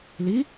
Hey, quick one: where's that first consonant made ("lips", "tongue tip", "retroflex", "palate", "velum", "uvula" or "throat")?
tongue tip